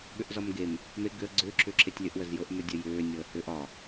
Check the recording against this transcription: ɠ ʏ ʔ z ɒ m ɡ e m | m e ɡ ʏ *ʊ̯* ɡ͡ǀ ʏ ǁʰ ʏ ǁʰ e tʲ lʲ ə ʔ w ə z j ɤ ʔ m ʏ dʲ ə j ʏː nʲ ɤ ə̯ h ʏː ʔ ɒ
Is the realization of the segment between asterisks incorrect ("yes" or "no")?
yes